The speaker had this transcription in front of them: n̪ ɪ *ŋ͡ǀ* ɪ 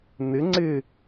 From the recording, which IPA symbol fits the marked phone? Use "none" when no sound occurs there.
ŋ͡ǀ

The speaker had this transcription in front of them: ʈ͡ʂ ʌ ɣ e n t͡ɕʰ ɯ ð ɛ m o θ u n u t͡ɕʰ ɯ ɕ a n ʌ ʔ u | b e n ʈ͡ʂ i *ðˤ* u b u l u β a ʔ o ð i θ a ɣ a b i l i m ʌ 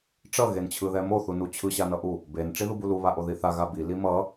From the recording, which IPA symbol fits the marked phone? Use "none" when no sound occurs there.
ð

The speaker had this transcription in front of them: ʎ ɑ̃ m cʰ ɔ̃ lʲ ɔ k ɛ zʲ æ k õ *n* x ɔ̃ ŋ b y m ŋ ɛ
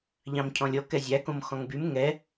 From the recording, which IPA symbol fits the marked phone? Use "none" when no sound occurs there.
m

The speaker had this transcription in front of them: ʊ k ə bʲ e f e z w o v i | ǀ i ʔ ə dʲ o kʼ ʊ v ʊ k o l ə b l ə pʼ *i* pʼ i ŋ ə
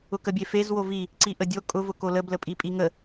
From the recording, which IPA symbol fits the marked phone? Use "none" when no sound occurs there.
i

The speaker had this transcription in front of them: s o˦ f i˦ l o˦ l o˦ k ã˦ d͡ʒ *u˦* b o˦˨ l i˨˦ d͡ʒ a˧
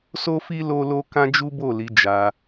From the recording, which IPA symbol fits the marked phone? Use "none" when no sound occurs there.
u˦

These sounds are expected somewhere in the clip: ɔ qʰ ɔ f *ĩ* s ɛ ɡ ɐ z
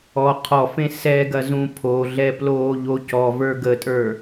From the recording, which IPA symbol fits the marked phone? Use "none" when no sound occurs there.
ẽ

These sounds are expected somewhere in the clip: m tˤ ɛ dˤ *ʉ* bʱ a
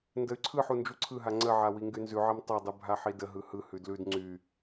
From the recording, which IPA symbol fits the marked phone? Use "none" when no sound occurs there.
ʉ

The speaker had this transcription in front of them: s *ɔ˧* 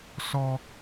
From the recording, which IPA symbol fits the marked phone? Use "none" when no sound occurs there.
ɔ˧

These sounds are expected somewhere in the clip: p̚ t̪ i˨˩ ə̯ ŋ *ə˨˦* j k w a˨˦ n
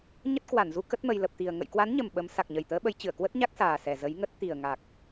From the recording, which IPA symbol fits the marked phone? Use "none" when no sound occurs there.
ə̰˧˨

